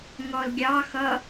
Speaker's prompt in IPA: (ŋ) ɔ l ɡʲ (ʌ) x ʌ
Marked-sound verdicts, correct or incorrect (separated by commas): correct, incorrect